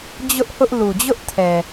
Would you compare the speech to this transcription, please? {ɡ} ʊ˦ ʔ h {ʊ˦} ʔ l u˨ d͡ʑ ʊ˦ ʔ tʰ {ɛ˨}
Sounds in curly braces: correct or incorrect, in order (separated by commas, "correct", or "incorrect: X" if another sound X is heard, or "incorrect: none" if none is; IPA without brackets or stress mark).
incorrect: d͡ʑ, correct, correct